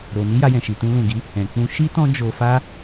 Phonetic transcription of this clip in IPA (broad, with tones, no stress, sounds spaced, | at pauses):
ɾ o˨ n i˧ j a˧ j ɛ̃˨ ʃ i˨ t ũ˧ l ũ˨ ɡ i˨˦ | ɛ̃˨ k͡p ũ˧ ʃ i˦ t ɔ̃˦ d͡ʒ o˧ f a˦